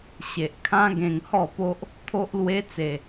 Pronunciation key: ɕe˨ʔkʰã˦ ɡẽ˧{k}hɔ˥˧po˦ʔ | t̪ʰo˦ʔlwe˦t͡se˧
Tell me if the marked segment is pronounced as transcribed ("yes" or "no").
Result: no